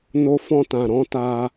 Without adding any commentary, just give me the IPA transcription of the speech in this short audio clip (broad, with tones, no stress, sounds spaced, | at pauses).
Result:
n o˧ f ɔ̃˧ t ã˨ ɾ ɔ̃˨˦ t a˧